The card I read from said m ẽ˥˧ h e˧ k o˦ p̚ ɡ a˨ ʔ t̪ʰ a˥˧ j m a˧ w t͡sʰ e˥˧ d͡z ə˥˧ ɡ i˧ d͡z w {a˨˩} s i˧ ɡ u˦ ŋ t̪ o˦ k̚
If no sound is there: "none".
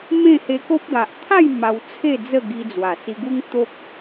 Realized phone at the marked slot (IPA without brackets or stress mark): a˨˩